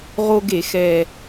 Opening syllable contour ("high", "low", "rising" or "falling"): high